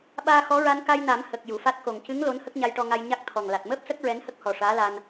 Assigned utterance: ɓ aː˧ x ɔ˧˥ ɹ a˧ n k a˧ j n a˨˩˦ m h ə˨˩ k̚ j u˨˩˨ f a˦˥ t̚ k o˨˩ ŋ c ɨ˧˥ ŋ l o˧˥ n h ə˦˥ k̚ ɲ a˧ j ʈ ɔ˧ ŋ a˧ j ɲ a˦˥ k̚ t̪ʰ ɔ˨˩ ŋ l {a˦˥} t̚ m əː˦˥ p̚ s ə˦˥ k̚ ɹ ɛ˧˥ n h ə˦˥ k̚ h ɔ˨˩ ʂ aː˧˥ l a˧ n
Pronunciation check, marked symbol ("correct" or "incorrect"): incorrect